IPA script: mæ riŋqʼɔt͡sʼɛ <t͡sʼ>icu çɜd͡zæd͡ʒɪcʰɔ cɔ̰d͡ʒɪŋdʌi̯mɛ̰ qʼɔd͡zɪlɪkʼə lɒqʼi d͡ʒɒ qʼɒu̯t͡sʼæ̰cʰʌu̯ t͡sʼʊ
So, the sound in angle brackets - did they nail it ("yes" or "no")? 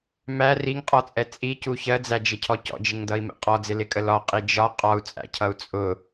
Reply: yes